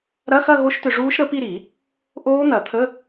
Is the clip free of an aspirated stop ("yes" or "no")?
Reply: no